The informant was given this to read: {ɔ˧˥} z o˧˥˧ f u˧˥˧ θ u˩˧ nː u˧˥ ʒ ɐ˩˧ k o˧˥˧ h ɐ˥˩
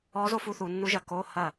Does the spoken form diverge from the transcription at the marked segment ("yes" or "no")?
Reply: no